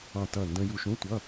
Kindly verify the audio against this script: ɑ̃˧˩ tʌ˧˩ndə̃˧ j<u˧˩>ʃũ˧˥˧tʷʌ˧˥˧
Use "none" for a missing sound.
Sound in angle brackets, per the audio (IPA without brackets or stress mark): u˧˩